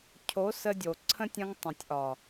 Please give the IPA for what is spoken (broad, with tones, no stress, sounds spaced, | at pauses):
cʰ o˨˦ s ə˧ dʲ o˨ ǀʰ ə̃˦ tʲ ə̃˧ ŋ tˤ ə̃˨ tʲ ʔ ɒ˨